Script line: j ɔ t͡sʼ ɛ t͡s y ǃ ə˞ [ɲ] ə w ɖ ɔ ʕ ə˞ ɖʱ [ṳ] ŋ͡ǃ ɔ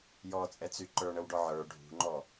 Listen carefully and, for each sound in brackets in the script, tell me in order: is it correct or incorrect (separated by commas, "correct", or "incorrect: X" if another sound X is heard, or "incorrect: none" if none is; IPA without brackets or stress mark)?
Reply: incorrect: ɳ, correct